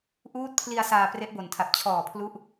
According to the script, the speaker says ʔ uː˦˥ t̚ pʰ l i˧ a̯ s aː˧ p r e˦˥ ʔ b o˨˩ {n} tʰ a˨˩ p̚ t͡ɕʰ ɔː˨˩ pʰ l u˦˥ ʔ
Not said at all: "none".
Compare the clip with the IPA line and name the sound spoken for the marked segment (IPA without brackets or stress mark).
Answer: n